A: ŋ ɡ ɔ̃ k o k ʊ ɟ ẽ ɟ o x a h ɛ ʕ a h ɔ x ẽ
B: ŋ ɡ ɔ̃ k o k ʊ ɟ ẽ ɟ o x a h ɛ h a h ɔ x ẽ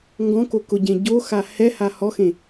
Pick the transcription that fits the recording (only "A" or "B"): B